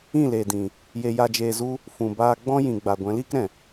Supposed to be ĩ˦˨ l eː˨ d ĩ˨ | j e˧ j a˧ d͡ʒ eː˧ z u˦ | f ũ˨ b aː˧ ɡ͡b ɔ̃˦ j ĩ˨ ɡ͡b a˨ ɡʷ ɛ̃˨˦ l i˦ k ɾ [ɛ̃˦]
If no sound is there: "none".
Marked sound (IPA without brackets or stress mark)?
ɛ̃˨